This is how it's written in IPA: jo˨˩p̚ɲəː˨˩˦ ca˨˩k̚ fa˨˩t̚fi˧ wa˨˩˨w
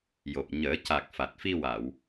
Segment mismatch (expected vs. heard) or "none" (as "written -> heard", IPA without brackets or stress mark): none